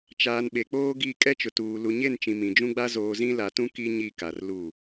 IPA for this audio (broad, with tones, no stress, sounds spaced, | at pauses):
t͡ʃ aː˨ n ɓ e˨ k͡p oː˦ ɡ i˦˨ kʼ ɛ˦ t͡ʃ ʊ˨ t uː˨ l u˨ ɲ e˦˨ n t͡ʃ ĩ˨ m ĩ˨ d͡ʒ ũ˦ ɡ͡b a˦ z oː˨ z ĩ˦ l a˨ t ũ˦ k i˦ ɲ i˦˨ k a˨ r l u˦˨